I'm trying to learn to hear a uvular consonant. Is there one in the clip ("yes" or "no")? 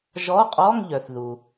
yes